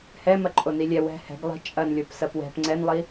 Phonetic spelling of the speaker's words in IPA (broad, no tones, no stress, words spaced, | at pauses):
hɛ mɐǃʼonilʲɛ wɛ̤ hɛ̤ɡ lˠi̤ t͡ʃʼɐnlʲop sɐpwɛ̤p ŋ͡ǀɛnlˠi